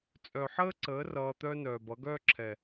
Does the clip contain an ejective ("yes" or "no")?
yes